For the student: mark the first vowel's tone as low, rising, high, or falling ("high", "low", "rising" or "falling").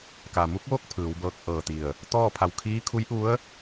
low